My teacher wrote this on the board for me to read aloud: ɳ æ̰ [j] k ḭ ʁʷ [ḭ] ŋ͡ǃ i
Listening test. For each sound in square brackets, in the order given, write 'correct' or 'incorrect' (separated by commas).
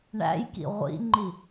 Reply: correct, correct